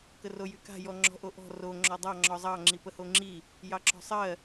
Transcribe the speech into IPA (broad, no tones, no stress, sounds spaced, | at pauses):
k ə r o j y k a̤ j ɔ ŋ͡ǁ ɔ̤ ʔ o ʔ ɔ̤ r o ŋ͡ǁ ɔ dˤ ɑ ŋ͡ǁ ɔ zˤ ɑ ŋ͡ǁ i p ə h o ŋ͡ǁ i | j ɑ ǁ ɔ̤ sˤ ɜ